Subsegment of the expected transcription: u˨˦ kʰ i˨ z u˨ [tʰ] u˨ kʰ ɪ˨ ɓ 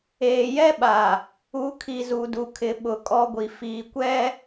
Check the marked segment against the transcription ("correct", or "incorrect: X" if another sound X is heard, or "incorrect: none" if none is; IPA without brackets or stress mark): incorrect: d